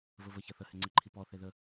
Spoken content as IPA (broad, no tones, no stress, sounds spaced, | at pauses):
v ə v ɐ ç ɐ θ ə h ɪ ŋ͡ǀ i ǃʰ i p ɔ θ e ð ə